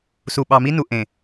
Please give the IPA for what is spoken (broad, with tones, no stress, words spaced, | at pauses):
su˨ɓɑ˨mi˦nu˨ ʔẽ˨